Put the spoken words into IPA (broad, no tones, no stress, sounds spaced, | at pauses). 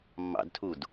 mː ɑ̰ d tʰ u d